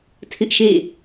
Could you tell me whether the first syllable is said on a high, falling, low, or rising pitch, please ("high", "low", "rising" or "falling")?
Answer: high